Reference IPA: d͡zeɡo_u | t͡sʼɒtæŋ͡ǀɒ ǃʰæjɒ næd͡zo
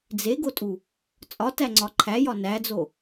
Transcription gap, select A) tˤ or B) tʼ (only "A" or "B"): B